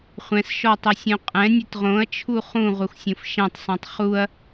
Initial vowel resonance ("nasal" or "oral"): nasal